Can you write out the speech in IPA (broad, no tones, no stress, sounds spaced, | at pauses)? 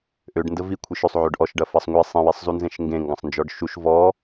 ʔ ø ɖ n d ə v i kʷʰ i ʃ ø sˤ ʕ ø ɖ ʔ ɔ ʃ ɖ ɐ f ɐ sˤ ŋʷ e sˤ ĩ w e sˤ z u n z ẽ ʃ ŋ ɡ ẽ ŋ ɡ ɐ̃ sˤ n d͡ʒ ɔ ɖ ʃ u ʃ v ɔ